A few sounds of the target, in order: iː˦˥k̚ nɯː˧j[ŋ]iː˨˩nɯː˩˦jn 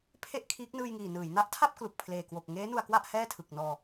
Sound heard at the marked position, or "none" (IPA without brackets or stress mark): ŋ